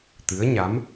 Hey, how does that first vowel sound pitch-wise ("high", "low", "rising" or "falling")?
rising